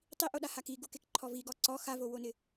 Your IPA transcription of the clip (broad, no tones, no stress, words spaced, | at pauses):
tˤiʔoɗahak iɡukekǃʰɔ viɡɔ ǀɔ xavowonɪ